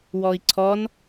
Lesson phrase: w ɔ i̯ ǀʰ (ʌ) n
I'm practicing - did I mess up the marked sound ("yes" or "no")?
yes